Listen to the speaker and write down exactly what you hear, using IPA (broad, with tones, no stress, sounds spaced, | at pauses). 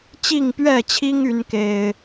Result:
t͡ɕ i˥˨ ŋ p ɥ ɛ˥˨ t͡ɕʰ i˦ ŋ y˨˦ n k e˨˩ ɪ̯